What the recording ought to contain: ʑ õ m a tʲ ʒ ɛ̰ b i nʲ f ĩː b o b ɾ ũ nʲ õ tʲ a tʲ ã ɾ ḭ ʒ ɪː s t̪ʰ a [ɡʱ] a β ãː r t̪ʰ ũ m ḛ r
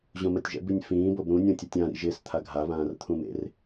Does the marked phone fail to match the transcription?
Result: no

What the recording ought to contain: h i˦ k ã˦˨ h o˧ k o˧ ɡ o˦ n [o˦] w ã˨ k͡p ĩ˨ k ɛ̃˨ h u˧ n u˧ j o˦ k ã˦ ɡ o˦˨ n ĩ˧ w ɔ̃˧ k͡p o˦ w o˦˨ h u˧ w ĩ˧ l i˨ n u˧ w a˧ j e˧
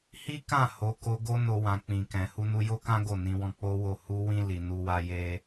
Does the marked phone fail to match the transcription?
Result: yes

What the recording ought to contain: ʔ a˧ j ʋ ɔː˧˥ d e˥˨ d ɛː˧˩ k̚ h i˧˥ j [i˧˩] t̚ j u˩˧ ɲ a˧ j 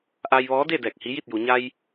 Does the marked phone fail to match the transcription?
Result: yes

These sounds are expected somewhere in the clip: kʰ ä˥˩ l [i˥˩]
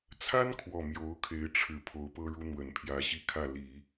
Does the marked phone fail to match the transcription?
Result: yes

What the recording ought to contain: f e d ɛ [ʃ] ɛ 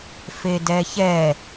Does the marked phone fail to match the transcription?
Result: yes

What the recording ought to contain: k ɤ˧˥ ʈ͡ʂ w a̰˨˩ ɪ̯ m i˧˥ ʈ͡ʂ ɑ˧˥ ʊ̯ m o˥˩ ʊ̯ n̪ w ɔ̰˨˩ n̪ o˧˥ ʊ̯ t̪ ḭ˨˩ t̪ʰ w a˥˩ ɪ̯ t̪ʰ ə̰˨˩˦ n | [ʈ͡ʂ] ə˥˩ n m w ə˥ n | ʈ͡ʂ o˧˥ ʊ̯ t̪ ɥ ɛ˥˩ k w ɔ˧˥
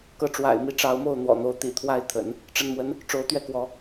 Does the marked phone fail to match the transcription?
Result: no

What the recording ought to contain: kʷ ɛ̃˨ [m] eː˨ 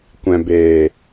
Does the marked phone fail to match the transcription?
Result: yes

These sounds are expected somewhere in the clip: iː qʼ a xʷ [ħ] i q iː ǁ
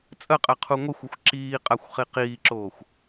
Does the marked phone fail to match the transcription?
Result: yes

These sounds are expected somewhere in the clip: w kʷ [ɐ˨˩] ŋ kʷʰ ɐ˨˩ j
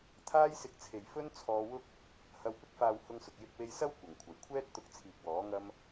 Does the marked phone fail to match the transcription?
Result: no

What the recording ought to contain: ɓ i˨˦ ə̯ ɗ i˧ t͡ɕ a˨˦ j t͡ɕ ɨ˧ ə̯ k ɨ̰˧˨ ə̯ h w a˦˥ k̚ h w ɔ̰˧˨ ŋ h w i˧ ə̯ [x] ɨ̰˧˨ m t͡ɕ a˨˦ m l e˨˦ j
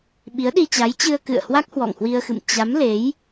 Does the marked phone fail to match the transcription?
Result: no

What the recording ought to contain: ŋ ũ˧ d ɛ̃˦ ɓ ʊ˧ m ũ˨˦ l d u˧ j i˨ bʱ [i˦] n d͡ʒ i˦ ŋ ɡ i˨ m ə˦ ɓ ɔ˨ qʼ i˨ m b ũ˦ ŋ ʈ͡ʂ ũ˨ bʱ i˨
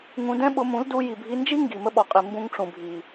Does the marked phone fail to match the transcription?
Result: yes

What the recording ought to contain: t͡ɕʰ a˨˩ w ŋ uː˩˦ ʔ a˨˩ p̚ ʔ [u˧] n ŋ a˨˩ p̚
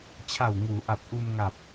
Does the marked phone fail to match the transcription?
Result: no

